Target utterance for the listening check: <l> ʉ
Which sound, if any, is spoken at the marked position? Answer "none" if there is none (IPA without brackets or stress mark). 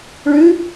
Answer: ɭ